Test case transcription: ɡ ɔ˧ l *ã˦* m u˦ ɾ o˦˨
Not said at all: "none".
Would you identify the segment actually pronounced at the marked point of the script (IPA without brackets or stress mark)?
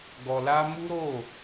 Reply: a˦